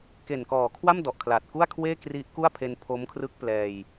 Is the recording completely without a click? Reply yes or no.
yes